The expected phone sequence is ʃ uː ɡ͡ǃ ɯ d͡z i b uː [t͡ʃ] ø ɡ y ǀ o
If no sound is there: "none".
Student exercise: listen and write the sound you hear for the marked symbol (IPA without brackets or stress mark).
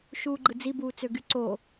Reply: t͡s